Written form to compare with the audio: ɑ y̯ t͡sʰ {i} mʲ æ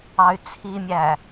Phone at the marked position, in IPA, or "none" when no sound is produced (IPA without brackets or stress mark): i